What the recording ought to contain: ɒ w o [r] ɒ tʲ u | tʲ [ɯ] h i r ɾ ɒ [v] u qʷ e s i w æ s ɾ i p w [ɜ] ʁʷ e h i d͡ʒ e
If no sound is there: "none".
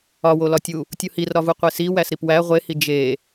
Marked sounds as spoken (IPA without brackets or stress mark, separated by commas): l, u, v, æ